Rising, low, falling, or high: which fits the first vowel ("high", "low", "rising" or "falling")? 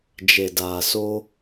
low